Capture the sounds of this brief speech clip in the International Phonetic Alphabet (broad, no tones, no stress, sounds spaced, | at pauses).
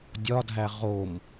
dʲ ɒ dʱ æ ʁ o m